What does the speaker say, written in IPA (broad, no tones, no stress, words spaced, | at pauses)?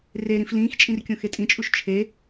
reɾĩf lĩːxt͡ʃʼĩr kʲõxetʼĩt͡ʃʼuʃ t͡ʃʰe